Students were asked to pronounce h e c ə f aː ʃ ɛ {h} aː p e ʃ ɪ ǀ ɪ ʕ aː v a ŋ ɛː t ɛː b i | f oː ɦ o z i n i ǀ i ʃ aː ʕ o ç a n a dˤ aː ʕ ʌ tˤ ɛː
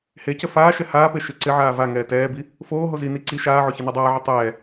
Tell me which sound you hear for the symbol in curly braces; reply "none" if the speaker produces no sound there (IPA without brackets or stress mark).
h